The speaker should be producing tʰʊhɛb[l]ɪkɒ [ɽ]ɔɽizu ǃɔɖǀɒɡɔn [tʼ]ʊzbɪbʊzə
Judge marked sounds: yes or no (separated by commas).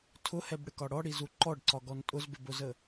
no, yes, yes